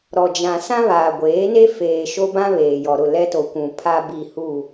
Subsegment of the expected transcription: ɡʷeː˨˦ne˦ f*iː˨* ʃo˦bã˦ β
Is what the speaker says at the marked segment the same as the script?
no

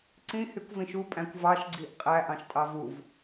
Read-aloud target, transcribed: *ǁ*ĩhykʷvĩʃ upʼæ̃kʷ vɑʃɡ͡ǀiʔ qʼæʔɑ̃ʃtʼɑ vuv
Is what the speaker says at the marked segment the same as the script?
no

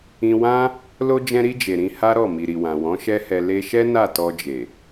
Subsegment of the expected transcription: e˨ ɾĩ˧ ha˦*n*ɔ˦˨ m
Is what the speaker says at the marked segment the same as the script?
no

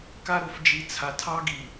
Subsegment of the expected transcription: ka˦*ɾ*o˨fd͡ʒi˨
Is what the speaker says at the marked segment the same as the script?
yes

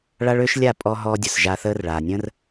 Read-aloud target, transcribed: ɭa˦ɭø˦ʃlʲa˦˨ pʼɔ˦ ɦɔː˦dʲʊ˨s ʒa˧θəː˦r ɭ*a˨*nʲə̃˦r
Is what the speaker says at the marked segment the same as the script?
yes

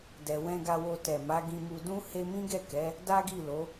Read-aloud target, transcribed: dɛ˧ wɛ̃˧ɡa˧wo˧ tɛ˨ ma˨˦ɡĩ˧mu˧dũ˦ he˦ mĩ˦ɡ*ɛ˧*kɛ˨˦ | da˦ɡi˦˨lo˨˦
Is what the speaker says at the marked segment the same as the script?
no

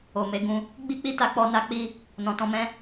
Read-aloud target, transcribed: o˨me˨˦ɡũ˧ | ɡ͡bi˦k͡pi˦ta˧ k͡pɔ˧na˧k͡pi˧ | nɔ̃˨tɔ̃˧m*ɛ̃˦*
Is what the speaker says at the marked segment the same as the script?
yes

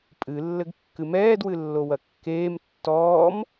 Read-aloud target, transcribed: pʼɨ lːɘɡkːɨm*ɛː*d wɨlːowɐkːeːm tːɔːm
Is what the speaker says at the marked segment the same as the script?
yes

